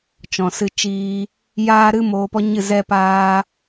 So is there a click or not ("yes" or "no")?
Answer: no